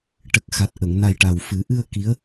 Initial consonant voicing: voiceless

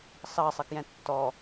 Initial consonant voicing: voiceless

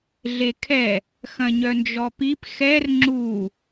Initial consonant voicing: voiced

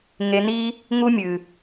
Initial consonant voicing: voiced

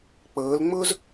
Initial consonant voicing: voiceless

